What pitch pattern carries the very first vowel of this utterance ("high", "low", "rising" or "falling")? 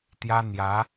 high